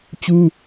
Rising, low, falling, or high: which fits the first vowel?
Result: high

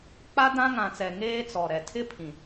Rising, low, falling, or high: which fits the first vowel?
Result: high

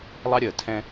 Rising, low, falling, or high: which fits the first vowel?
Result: high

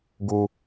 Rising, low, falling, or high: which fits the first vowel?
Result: high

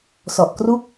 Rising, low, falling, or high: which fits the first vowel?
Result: low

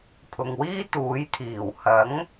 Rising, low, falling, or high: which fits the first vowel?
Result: low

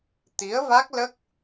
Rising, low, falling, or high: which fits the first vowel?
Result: rising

